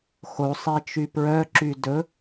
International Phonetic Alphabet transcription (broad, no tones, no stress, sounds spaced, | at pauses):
x o sˤ e t͡ʃ y p ɹ œ ǁ y d ɵ